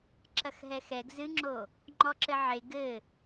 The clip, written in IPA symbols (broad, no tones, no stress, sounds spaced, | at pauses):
ǁ ɐ x ɦ ɛ x ɛ ɡ z ɨ ŋ͡ǁ o | ŋ͡ǃ ɔ ǁ ɘ ʕ e ɡ ɘ